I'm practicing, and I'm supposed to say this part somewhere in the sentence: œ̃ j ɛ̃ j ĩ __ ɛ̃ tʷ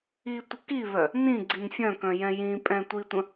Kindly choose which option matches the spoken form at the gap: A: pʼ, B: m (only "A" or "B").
A